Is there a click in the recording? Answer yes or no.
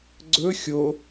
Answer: yes